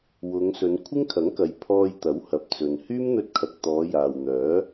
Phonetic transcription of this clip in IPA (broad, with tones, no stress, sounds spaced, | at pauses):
w ʊ˨˧ ŋ s ɵ˨˧ n kʷʰ ɪ˥ ŋ kʰ ɐ˨˥ ŋ k ɐ˨ j pʰ ɔː˧ j t̪ ɐ˨˥ w h ɐ˨ p̚ t͡s ɵ˨ n h yː˥ m n̪ ɵ˧ t̚ kʰ ɐ˨ k̚ t̪ ɔː˨˧ j aː˨ w n̪ œː˨˥